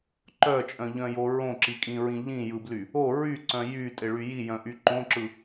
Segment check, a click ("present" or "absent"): present